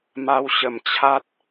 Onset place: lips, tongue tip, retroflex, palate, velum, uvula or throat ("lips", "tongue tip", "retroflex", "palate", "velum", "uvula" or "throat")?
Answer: lips